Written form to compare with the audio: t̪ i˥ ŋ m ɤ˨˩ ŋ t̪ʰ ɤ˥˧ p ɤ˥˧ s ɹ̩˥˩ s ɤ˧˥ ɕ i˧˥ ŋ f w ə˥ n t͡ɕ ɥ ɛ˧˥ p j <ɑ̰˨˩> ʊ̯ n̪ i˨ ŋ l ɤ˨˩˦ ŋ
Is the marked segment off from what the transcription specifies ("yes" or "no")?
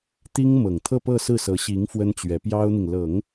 yes